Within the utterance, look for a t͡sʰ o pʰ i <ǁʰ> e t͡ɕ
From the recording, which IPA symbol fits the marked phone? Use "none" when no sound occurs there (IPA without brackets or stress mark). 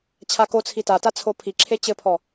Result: ǁʰ